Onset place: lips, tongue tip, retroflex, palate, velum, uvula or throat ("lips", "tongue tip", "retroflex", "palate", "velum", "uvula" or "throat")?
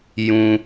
palate